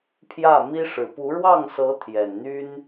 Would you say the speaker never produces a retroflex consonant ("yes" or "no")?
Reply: no